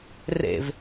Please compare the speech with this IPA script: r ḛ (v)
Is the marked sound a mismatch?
no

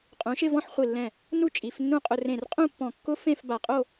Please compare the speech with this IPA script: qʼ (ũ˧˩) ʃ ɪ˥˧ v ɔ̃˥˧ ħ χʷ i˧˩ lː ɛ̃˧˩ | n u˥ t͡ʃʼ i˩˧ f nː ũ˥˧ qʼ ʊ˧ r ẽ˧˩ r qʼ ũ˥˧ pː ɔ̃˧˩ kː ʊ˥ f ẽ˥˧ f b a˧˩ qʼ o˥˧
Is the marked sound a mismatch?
yes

